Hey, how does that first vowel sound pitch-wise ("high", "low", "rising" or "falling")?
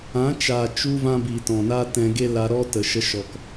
rising